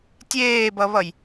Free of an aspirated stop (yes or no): yes